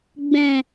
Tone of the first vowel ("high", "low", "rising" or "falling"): low